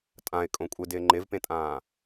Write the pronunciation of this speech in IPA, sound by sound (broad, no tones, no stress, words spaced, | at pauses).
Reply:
tʼãɪ̯kʼõ kʷʼɪdɪː ŋ͡ǃɪvpẽtʼãː